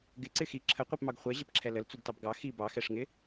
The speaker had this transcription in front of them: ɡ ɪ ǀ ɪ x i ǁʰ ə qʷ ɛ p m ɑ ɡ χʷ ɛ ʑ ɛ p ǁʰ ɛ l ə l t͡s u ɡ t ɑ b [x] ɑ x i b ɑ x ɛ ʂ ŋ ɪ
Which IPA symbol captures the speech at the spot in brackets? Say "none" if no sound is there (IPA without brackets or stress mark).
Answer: ɡ